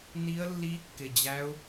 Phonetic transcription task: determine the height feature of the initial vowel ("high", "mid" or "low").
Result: high